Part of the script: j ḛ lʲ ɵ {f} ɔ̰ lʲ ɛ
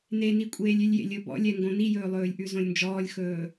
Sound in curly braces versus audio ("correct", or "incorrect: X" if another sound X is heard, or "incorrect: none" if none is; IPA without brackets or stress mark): incorrect: b